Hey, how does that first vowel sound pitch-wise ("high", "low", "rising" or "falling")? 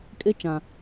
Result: high